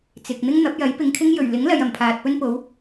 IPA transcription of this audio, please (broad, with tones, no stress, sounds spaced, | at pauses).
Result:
t͡s ɪ˨ k̚ n̪ ɪ˥ ŋ n̪ ɐ˨˥ p̚ j ɐ˨˥ j p ɪ˨ ŋ kʰ ɪ˥ ŋ j ɵ˨˩ ɥ l ɪ˨˥ ŋ l ɐ˨ j ɐ˨˩ m pʰ aː˨ t̚ p ɵ˥ n p o˨˥ w